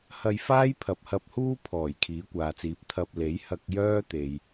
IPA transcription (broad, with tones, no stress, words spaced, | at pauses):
hɐ˧jfaː˥j pʰɐ˨p̚hɐ˧p̚huː˥ pʰɔː˨˩j kʰiː˨˥kʷaː˨t͡siː˨p̚ t̪ʰɐ˧p̚le˨˥j hɐ˧k̚ jœː˥t̪e˨j